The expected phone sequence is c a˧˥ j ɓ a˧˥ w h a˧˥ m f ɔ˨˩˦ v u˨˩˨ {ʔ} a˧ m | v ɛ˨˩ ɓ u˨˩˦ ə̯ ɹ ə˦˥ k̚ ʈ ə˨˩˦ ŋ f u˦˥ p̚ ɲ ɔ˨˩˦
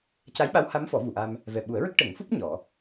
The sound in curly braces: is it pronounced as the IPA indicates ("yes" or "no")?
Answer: yes